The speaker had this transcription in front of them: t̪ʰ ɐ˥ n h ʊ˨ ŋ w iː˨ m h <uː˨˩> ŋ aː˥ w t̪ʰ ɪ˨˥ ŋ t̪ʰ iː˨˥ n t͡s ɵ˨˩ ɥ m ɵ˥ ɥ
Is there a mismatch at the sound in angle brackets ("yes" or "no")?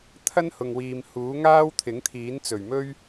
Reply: yes